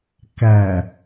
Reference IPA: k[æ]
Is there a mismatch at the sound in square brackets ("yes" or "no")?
no